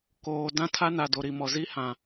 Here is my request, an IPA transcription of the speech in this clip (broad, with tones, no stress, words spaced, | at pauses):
koː˨ dã˦tʰa˦na˨ do˨ɾi˨mɔ˨ zi˦hã˨